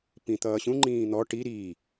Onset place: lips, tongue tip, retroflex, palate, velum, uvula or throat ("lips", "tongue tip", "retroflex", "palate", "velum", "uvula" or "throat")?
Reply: lips